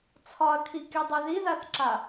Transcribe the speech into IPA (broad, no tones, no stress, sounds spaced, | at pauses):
t͡sʰ ɒ ɐ̯ kʰ i k i dˤ i ð i ð a θ ǁ a